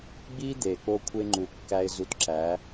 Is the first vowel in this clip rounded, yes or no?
no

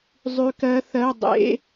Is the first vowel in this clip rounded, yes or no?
yes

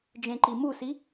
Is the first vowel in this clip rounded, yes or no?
no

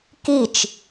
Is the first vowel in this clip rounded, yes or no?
no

